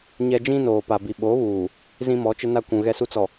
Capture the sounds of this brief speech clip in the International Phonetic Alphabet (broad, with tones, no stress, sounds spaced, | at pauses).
ɲ ɛ˦ d͡ʒ ĩ˦ n oː˨ p a˨ b i˨ ɓ o˨˦ β uː˨ | z ĩ˦ m ɔ˨˦ t͡ʃ ɪ˦ n a˦ kʷ ũ˨ ɣ ɛ˦ s u˦ t͡s ɔ˨